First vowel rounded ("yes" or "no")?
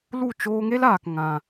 yes